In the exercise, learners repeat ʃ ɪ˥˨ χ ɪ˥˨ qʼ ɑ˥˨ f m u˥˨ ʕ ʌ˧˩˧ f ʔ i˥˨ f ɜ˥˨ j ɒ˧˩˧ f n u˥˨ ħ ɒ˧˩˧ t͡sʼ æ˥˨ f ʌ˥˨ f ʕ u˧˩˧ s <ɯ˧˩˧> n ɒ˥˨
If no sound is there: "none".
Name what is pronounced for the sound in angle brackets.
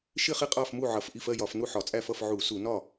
u˧˩˧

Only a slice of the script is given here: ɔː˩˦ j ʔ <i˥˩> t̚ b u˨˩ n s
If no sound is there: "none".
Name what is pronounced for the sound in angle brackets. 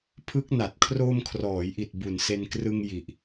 i˨˩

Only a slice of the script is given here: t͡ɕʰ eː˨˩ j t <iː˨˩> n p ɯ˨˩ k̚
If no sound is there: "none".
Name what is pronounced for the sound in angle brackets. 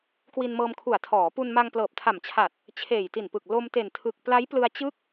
i˨˩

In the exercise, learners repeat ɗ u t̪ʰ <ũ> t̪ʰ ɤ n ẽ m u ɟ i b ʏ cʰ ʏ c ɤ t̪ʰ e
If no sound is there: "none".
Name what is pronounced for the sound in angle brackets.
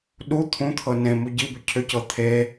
ũ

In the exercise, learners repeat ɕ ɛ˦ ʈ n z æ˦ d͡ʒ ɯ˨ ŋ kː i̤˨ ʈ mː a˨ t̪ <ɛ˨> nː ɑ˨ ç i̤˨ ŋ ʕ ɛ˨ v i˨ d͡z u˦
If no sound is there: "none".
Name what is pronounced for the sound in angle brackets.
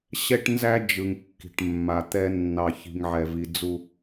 ɛ˦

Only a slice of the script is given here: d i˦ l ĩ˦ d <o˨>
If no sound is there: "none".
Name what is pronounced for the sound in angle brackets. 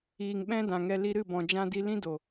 o˨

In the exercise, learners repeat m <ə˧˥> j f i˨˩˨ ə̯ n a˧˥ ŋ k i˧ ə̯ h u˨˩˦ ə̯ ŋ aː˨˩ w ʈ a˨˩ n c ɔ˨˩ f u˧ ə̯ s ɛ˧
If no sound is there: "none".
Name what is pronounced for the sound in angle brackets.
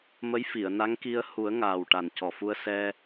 ə˧˥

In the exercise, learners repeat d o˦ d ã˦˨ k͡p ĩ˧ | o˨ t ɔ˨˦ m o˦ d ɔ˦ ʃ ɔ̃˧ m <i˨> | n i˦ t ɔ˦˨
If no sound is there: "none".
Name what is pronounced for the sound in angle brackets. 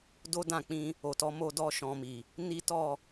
i˨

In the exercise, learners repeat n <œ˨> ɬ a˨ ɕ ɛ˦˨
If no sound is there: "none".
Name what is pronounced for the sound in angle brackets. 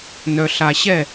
œ˨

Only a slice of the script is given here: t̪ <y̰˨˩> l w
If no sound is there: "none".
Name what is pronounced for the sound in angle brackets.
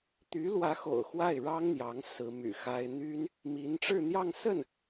y˧˥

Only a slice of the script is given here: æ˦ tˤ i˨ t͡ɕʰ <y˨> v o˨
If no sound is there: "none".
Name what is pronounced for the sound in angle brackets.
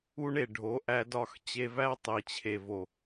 e˨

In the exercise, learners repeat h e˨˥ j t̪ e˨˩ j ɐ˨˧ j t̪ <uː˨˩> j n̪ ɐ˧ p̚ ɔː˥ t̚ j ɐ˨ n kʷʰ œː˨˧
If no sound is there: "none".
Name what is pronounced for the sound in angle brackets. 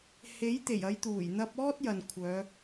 uː˨˩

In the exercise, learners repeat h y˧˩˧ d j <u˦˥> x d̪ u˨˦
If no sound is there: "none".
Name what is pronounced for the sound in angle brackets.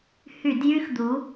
y˦˥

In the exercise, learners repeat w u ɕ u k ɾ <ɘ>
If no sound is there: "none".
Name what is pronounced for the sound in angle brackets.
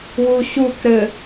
ɘ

